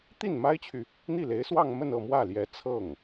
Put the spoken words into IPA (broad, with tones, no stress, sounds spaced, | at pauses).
t̪ i˥˩ n m a˥ ɪ̯ t͡ɕʰ y˨ | n̪ i˥˩ l e˧˥ ɪ̯ s w ɑ˥˧ ŋ m ə˥˧ n ɤ˥˧ m w ä˥˩ l j ɛ˧˥ t͡sʰ ɤ˥˩ ŋ